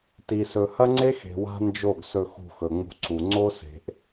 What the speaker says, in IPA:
ti˨sɵ˨ hɐ˦ŋ͡ǀe˦xe̤˨ wa̤˦nd͡ʒo˦˨ɡsɵ˧ xṳ˧xɵ˨ŋ͡mṳ˧ǀu˨ ŋ͡ǀo˦se̤˨ʔ

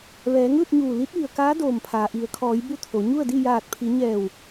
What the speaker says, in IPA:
ʋɛː˩˧ŋɯː˥˨t̚ɲuː˧˩ li˧˥t̚ʋi˩ə̯kaː˧˥ doː˧˩mpʰaː˩ ʔi˩˧ə̯kʰɔː˩˧j bu˥˨t̪ʰo˩˧ ɲu˥˨ə̯di˥˨ jaː˧˩t̚pʰi˩˧ɲɛː˧˩w

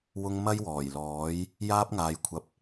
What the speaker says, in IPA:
wʊ˥ŋ mɐ˥jwɔː˨˩jlɔː˨˥j | jaː˥p̚ŋaː˧jkʷʰɐ˧p̚

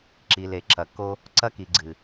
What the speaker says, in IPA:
ǁi˨le˨ ǁɐ˨kːo˦ | ǀɐ˦ki˨ɡ͡ǀɨ˨

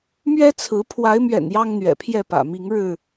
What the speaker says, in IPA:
mɥɛ˦t͡sʰɹ̩˨˦ pʰwa˨˦ɪ̯mɥɛ̰˨˩n jɑ˦ŋn̪ɥɛ̰˨˩pʰjɛ˥˨pä̰˨˩ mi˨˦ŋɻɻ̩˥˨

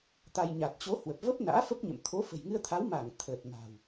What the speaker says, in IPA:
t̪a˧j ɲa˨˩t̚t͡ɕo˨˦ hwə˨˩p̚və˦˥p̚ na̰ː˧˥fə˦˥p̚ɲə̰˧˨m t̪ʰo˨˦fə̤˨˩jŋɨ˧ə̯t̪ʰa˨˦w ma˧˩ŋ t̪ʰəː˨˩t̚ma̤˨˩w

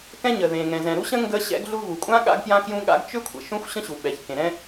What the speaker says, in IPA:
kɛ̃˥ɲə˩ðẽ˩ ŋɛ̃˩zɛ̃˩ɾu˥ɕə̃˥ ŋɡə˥ɕɛ̰˥ɡɮu˥ vu˩kʷʼã˥ ɠa̰˥ɡpjã˥kjũ˥ɠa̰˥ɡ t͡ʃʏ˥kʷʰə̰˩ ʃũ˥xʷɕə̃˥ɕu˩ɓɛ˩ç kẽ˩ɾɛ̃˥

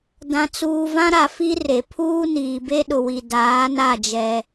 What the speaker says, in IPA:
dã˨t͡suː˨vã˦ɾa˨ fi˦re˨ pʰuː˦niː˨ be˦ɗʊ˨wi˨ daː˨˦na˦˨d͡ʒɛ˦

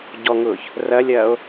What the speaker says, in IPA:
ɟɔŋʊːç | rɐlʲɐːo̯

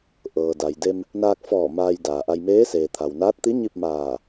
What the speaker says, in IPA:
ʔɤː˩da˩jde˧m | naː˧k̚fɔː˧˩ maː˧jdaː˩ʔa˧j meː˧˥seː˩ t̪ʰa˩wnaː˧˥t̚t̪i˧˥ ɲi˥˨p̚maː˧˩

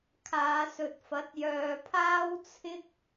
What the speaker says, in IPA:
kʰaː˨˧sɵ˨t̚fɐ˨˥t̚jœː˨ pʰaː˥wt͡sʰɪ˥k̚

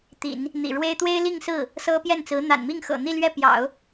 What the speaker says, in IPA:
t̪ḭ˨˩˦n | n̪ḭ˨˩ɻwe˥ɪ̯ t̪we˥ɪ̯li˥˧ŋsɹ̩˥˩ | sɤ˥pjɛ˥˩nt͡sɹ̩˧˥ n̪a̰˨˩n mi˥˩ŋxɤ̰˨˩n̪i˥˧ lɥɛ˥˩pjɑ̰˨˩˦ʊ̯

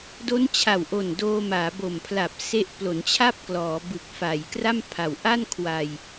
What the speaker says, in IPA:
do˦˥nt͡ɕʰa˨˩wʔo˨˩n doː˧maː˩˦bo˨˩mpʰla˨˩p̚ se˦˥ʔplo˩˦nt͡ɕʰa˥˩p̚klɔː˩˦ bɯ˨˩k̚fa˩˦j kra˥˩mpʰa˩˦w ʔa˥˩nkʰwa˧j

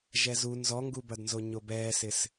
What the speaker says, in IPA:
ʒɛzu nzɔŋɡubɐdnzo ɲobɛːsɪs

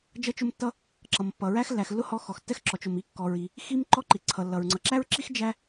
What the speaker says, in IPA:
d͡ʒʌ˥t͡ʃʊ˥mtːʌ˥ | ǁʌ˨mpːʌ˨ ɹæ˥xlːæ˨xlːʊ˥ hɔ˧˥xɔ˨xtːɛ˥x ǁɔ˨t͡ʃ ʊ˨m i˧˥ kːɔ˨ɹi˨ | xi˥m ǃɔ˥ǃi˨ǀʰʌ˨lːʌ˨ɹ ŋ͡ǀʌ˨ǁæ˥ɹǁi˥x d͡ʒæ˥

